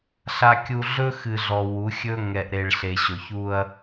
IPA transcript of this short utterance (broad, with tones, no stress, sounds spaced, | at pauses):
ɬ a˨ kʲ u˨ ɮ ɵ˦ x ɨ˨ ɮ ɔ˨ w u˨˦ xʲ ɵ˦ ŋ ɛ˨ ʔ ɾ e˨ ɭ ɬ e˨ ɕ ɵ˨ ç u˦ ɐ̯